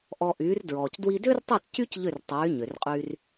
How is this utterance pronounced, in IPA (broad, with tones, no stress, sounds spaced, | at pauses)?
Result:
ʔ ɔ˧ ʔ yː˩˥ r d ɹ ɔː˩ c d w i˧ d ʏː˥ r tˤ o˥˩ t c y˥ c ʎ ʏ˥˩ r tˤ yː˩˥ ɲ ʏ˩ r qʼ y˧ r